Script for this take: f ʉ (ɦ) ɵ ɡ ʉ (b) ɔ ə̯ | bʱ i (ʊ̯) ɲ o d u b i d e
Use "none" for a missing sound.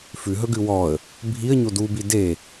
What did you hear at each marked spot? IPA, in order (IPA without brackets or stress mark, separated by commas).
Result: ɦ, w, ə̯